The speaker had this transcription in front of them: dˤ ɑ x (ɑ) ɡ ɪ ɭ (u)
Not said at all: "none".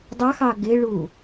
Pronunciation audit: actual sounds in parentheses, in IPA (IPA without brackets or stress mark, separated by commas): ɑ, u